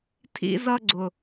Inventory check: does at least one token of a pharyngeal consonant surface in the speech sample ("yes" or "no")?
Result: no